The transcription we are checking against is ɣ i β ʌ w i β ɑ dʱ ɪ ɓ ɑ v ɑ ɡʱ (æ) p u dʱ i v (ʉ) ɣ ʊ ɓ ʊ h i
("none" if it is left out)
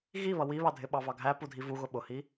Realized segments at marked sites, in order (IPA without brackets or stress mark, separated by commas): æ, u